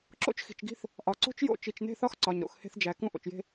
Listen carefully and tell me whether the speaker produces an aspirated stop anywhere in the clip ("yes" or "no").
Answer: no